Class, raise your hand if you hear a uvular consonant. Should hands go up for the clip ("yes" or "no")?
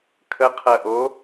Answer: yes